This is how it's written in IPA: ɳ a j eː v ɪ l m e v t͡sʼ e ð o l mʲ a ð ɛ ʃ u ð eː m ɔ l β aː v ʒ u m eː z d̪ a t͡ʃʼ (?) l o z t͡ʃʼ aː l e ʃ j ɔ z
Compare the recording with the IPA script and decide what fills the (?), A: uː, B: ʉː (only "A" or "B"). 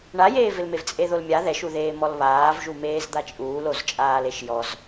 A